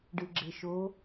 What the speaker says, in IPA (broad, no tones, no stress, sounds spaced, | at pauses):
ɖ ɯ ɡ͡ǁ e ʃ o